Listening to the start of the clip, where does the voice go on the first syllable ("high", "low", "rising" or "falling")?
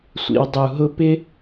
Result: low